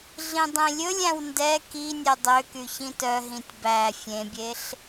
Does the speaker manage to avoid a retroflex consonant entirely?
yes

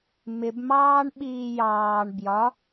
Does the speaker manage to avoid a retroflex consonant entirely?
no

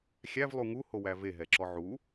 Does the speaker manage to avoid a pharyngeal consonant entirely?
no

